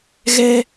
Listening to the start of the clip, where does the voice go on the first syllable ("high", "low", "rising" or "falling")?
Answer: high